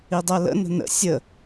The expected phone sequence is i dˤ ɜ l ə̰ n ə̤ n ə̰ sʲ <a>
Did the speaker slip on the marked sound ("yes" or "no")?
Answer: yes